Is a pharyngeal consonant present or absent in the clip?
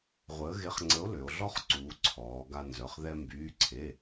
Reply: absent